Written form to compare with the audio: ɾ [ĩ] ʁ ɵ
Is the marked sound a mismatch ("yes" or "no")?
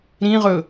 no